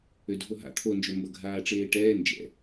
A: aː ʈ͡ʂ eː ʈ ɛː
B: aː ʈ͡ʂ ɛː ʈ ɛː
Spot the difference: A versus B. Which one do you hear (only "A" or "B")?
A